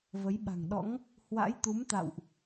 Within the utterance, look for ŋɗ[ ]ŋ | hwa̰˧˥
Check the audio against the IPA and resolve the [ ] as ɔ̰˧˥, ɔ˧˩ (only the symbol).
ɔ̰˧˥